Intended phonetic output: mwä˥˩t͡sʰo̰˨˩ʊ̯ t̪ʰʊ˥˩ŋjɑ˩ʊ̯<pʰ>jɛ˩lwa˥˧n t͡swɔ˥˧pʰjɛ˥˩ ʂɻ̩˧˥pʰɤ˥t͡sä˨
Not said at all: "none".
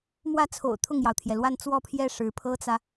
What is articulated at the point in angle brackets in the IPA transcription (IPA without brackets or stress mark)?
t̪ʰ